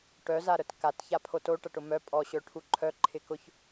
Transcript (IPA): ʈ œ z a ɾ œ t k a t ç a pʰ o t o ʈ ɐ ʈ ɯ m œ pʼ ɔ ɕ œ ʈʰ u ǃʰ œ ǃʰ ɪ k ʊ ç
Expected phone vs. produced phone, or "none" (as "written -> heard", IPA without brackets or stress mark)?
ɯ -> ʊ